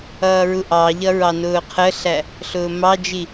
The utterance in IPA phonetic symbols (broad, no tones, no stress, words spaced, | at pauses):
ʌːɹuʔɑʎʌ ɹɑnʊːqʰəɬæ | ɬʊːmɑd͡ʒi